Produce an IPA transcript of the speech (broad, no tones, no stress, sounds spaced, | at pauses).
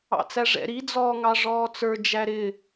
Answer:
ɑ̰ t͡s æ ʐ ɛ̰ ɾ i d͡z ɔː ŋ ɑ ʐ ɔː t͡s ə˞ d͡ʒ æ ɾ ɪ